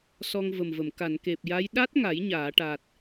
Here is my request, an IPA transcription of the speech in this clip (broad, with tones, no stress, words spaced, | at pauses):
sɔ˧ŋvə˨˩mvə˨˩˨m ka˨˩˨nke˨˩p̚ja˧˥j ɗa˦˥t̚ ŋa˨˩˦jɲaː˨˩˨ʈa˨˩t̚